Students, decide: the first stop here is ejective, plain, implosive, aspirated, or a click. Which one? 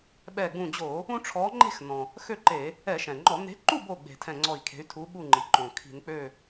implosive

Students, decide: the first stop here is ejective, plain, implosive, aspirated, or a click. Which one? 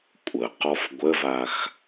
ejective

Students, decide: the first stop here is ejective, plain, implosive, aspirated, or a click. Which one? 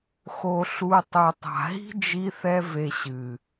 plain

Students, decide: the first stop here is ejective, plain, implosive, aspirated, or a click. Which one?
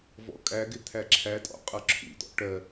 ejective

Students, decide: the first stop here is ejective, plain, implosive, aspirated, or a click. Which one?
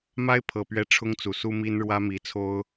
aspirated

